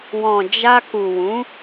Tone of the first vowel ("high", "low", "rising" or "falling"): low